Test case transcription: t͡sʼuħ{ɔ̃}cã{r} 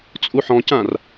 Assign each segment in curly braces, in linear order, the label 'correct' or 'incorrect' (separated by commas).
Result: correct, correct